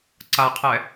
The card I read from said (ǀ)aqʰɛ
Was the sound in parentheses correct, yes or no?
yes